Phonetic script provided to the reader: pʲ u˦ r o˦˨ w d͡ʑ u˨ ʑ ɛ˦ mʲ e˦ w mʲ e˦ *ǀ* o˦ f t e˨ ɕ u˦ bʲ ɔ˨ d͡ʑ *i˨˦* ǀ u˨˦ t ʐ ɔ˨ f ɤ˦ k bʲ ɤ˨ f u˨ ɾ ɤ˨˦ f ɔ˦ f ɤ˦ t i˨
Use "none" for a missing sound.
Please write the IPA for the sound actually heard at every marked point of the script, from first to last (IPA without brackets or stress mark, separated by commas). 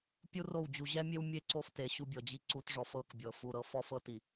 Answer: ǀ, i˦